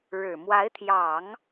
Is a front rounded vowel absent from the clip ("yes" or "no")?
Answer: yes